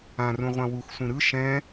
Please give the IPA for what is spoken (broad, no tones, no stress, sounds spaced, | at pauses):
ã r ũ ʁʷ ã w u x sʷ ĩ ɾ ɯ ʃ ɛ̃